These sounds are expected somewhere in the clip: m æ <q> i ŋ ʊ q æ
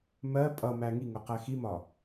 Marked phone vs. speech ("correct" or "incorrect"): incorrect